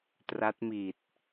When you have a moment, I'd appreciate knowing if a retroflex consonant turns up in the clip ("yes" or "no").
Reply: no